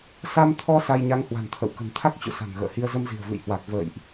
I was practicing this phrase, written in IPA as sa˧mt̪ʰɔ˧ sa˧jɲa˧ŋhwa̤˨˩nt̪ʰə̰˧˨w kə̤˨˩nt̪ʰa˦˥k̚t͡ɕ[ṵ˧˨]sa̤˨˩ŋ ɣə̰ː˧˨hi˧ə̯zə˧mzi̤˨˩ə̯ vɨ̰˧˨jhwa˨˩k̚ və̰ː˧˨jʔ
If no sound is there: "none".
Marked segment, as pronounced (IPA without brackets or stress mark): ṵ˧˨